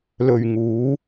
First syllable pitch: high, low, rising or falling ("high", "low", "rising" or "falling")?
low